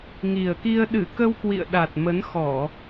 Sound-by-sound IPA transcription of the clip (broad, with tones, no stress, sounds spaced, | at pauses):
ŋ i˨˩ ə̯ k i˧ ə̯ ɗ ɨ˧˩ k ə˧ w k w ḭ˧˨ ə̯ ɗ a˨˩ t̚ m ə˨˦ n x ɔ˧˩˨